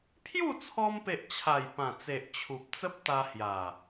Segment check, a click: absent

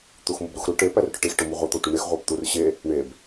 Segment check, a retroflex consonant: present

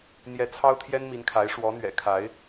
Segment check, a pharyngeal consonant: absent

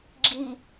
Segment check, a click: present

